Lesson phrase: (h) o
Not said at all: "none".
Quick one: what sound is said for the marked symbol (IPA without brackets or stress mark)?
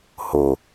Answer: h